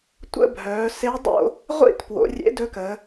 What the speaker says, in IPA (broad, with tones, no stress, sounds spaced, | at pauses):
tʷ ə̰˥˧ bʱ œː˩˧ s e˧˥ dˤ o̰˥˧ | ʁʷ ḭ˥˧ t p w o̰˩˧ rʲ ḛ˧˥ d ɵ˧˥ k əː˩˧